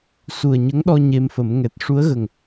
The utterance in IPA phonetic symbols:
s u˨˩ ə̯ ɲ ə˧˥ ŋ ɗ ɔ˧ ɲ e˧ m f ə˨˩˦ m ŋ ɛ˨˩ t̚ ʂ u˧˥ ə̯ ɣ ə˨˩ ŋ

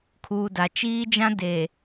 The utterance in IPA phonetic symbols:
kʰ uː˨ d a˨ t͡ʃ iː˦ d͡ʒ ã˦ d eː˨

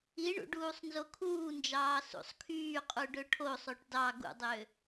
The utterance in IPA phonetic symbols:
i ɳ ṵ ɖ uː sˤ n z o kʰ uː n d͡ʒ ɑː s ṵ sˤ kʰ yː qʼ u ɖ ø ʈʰ o sˤ o ʈ d ɑ ɡ ṵ dˤ ø

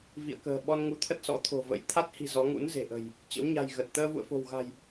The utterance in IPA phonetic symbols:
v ḭ˧˨ ə̯ k ə̤ː˨˩ ɓ ɔ˧ n ŋ u˨˦ t̪ʰ ə˦˥ t̚ s ɔ̰˧˥ t̪ʰ o̤˨˩ v ə̰˧˥ j t̪ʰ a˦˥ t̚ h i̤˨˩ z ɔ˨˦ ŋ ṵ˧˥ n z e̤˨˩ ʔ ə̤˨˩ j | t͡ɕ ə̰˧˥ w ɲ a̤˨˩ j ɣ ə˨˩ t̚ t̪ əː˧ v ṵ˧˨ ə̯ f o̤˨˩ w ɣ a̤˨˩ j

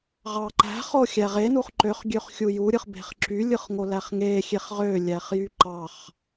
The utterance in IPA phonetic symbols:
ʁ ɑ ǃ æ̤ χ o xʲ æ ʁ e n u χ ǃ ø χ ɡʲ ø χ xʲ u j u ɾʲ ɯ χ b e̤ χ ǁ y lʲ ɯ χ ŋ o l æ χ ŋ e xʲ e χ ʁ ø lʲ æ χ j y ǃ ɑ χ

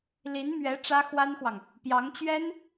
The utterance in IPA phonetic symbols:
l i˧˥ n m ɥ ɛ˧˥ ʈ͡ʂ ä˥ x w a˥ n x w ɑ˨ ŋ | p j ɑ˧˥ ŋ t͡ɕ ɥ ɛ˥ n

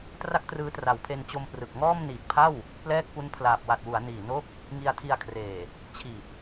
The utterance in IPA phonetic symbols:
t r a˥˩ k̚ t r ɯː˦˥ t r a˨˩ w pʰ e˧ n t͡ɕ o˧ m p r ɯ˨˩ k̚ ŋ ɔː˥˩ m n iː˨˩ k̚ pʰ a˥˩ w | p l ɛː˥˩ k̚ p u˦˥ n pʰ l aː˨˩ p̚ w a˨˩ t̚ w u˩˦ a̯ n iː˨˩ n o˦˥ k̚ | ŋ i˧ a̯ tʰ i˧ a̯ kʰ r eː˨˩ | t͡ɕʰ iː˨˩ p̚

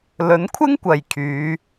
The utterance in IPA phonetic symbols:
l ɵ˨˥ n kʷʰ ɪ˥ ŋ kʷ ɐ˨ j kʰ yː˨˧

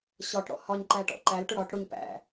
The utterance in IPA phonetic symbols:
ɕ ɒ ʈ ɽ ɔ̰ h ɒ ɲ ǃ æ ʈ ɔ̰ ǃ æ l ʈ ʊ ɽ ɒ ʈ ɽ ʊ ɲ p æ̰

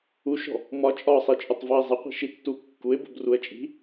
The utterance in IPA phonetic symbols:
u ʃ ɔ̤ | m ɒ t͡ʃʼ ɒ sˤ i t͡ʃʼ ʊ tˤ v ɒ ɪ̯ zˤ ɪ qʷ i̤ ʃ i tː u kː u ɪ̯ b ṳ b r u ə̯ t͡ʃʼ i̤

